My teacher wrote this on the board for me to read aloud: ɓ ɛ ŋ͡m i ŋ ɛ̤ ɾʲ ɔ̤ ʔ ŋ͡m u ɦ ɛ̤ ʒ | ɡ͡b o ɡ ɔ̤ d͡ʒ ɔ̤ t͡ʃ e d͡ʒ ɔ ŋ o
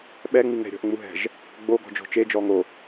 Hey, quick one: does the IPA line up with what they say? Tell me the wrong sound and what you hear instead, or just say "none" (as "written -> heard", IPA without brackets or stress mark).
none